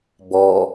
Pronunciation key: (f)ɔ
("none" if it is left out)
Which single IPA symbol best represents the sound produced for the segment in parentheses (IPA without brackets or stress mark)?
b